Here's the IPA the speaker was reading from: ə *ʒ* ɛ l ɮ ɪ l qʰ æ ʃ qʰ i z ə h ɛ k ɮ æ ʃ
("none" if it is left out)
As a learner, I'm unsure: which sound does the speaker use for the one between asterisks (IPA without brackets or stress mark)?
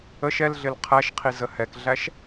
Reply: ʃ